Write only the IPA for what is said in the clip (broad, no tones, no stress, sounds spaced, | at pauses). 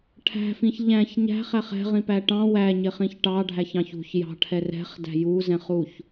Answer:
ʈʰ æ̤ f ĩ ç ʎ æ̃ ç ɲ æ̤ χ æ χ ɛ̤ ʁ ĩ p æ ʈ ɑ̃ w æ ɲ ɪ χ ĩ ç ʈ ɑ ɖʱ æ ç ɑ̃ ç ṳ ç j ɑ̤ ʈʰ ɛ r ɛ̤ χ d æ̤ j u z ɛ̃ χ u ç